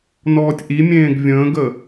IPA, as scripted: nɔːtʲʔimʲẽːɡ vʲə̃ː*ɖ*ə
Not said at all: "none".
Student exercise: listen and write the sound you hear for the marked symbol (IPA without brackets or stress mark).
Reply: ɡ